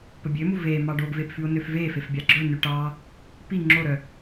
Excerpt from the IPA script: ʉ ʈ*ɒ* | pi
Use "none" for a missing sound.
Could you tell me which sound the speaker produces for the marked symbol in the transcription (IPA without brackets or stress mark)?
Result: ɑ